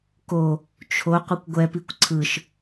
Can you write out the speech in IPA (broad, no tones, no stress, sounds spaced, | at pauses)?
k o | t͡ʃʰ o qʷ ɯ kʷ ɡʷ ɛ p i kʷ ǀʰ ɯ ʃ